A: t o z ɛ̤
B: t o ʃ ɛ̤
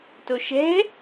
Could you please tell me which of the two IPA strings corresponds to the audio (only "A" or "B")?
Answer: B